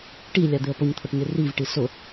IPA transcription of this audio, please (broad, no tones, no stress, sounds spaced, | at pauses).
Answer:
ʈ i lʲ a d̪ ɪ ə̯ p ʊ ɲ t̪ʰ ʊ ʈ ɲ ɪ r i v ʈ i s ʊ